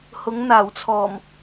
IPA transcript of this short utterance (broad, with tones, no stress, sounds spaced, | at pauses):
h ʊ˨˧ ŋ n̪ aː˨˩ w t͡sʰ ɔː˨˩ m